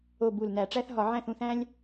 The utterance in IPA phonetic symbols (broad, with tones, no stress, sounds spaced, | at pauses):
o˨˩ b u˨˩ l n æ˧˩˧ ʈ͡ʂ æ˦ θ ɦ ɒ˧˩˧ ʕ æ̃˥˨ θ ũ˥˨ θ æ̃˦ lʲ